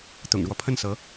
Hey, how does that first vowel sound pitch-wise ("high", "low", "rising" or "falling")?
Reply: low